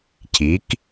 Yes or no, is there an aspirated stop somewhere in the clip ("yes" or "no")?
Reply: yes